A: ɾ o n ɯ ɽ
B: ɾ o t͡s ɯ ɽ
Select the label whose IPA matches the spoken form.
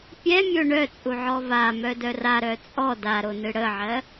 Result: A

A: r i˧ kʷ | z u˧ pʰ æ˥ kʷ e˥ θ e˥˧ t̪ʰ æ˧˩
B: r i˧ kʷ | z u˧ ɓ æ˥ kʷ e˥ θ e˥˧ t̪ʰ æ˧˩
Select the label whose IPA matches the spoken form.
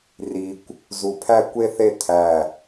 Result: A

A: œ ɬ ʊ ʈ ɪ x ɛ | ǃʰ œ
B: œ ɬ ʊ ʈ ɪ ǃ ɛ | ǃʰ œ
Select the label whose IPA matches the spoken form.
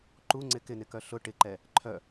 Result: B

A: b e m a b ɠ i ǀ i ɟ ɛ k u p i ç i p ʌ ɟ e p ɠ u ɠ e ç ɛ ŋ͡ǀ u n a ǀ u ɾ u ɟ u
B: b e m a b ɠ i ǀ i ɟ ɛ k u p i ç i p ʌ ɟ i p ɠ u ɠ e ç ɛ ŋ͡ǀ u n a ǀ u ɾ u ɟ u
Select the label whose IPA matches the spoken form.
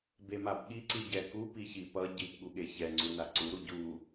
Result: B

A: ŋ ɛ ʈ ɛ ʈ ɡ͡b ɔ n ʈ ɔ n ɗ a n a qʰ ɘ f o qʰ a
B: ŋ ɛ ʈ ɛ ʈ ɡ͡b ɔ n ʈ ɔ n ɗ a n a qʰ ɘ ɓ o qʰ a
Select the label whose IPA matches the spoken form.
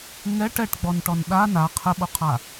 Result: B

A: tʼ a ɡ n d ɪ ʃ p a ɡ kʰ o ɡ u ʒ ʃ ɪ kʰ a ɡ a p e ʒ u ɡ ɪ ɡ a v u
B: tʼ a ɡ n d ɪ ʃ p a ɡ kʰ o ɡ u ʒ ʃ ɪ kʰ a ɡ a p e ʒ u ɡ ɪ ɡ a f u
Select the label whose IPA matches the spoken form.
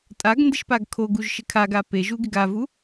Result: A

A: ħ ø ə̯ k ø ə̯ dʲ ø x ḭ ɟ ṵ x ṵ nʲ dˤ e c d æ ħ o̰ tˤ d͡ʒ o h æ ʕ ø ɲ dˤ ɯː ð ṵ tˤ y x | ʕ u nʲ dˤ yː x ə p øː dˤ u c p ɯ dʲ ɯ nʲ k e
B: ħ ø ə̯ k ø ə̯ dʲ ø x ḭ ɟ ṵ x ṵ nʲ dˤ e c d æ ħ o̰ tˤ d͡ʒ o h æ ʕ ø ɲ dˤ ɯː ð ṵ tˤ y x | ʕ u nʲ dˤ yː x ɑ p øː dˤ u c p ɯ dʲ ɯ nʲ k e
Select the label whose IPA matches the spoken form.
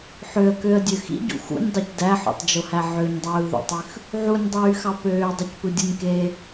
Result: B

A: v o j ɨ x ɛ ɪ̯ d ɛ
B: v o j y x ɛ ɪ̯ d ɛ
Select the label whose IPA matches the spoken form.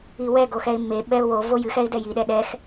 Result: A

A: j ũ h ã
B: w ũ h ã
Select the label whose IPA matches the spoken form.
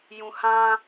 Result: A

